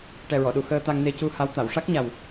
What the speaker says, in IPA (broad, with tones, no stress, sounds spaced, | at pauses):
ʈ ɛ˨˩ ɹ ɔ˨˩˨ ɗ u˨˩˨ x əː˧ t̪ a˧ ŋ n e˧ c u˧ h a˧˥ w t̪ a˨˩˨ w ʂ a˦˥ k̚ ɲ a˨˩ w